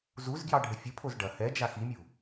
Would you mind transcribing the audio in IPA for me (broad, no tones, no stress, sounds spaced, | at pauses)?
z u z ɡ j ɑ ɖʱ ə fʲ ə pʰ o z ɖ ɐ h ɛ d͡ʒ a x i mʲ u